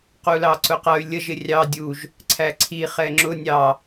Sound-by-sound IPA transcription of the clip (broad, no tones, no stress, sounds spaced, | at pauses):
q u l ɑ ǀ ʊ q ʌ y̯ lʲ ə ʒ ɪ rʲ ɑ dʲ u ʒ | ǀʰ æ ǀʰ i χ ɛ ŋ͡ǁ ʊ nʲ ɑ